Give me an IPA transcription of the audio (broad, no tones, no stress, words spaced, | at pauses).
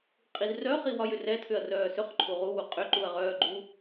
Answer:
qʼizrœ χiwɒjʏrɛ tʰʏɐ̯rœːsʏχ ǃʰuʁu wuqʼʏ ǃuɐ̯ʁœːɡ͡ǃu